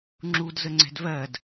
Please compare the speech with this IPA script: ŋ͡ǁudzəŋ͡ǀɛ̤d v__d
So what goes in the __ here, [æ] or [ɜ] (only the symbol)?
ɜ